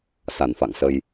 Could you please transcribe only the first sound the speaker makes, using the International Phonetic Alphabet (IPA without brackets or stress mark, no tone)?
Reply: s